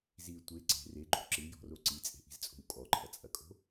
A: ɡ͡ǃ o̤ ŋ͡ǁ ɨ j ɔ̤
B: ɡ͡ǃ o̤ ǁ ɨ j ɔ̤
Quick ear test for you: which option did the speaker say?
B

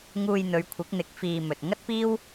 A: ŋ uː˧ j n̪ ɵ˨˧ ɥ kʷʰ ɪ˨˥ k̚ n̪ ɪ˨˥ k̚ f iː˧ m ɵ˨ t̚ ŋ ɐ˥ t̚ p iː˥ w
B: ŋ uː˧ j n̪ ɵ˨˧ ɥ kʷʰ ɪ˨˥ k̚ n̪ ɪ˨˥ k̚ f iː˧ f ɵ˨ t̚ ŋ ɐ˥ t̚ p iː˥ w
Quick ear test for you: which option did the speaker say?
A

